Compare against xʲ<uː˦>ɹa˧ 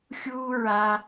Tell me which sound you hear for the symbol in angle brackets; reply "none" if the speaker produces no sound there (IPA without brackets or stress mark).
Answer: uː˦